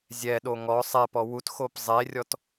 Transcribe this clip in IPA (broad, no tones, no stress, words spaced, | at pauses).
zʲɛɗo ŋɔ sˤɛpɔ wutxop zˤerʲɔt